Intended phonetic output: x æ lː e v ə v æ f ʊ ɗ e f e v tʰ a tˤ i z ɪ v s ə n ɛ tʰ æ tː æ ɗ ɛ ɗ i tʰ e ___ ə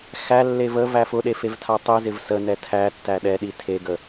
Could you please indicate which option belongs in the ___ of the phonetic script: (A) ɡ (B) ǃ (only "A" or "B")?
A